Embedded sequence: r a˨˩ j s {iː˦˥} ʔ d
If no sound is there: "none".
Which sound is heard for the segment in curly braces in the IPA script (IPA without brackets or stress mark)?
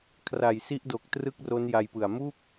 i˦˥